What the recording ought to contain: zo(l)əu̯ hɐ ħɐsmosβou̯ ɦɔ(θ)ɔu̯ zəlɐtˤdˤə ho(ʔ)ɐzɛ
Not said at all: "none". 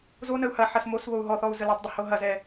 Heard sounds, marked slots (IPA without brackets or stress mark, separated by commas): n, θ, ɦ